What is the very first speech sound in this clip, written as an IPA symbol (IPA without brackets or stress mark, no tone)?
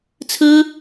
t͡sʰ